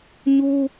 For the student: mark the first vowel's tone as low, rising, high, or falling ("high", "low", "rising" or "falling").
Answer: high